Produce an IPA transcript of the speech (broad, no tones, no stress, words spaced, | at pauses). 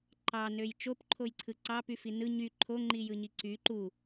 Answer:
ǃɑnøj t͡ʃopǃʰojǀʰɯ ǀɑpyfi nɯ ɲy ǃʰoŋ͡ǃijɯɲi ǀy ǃu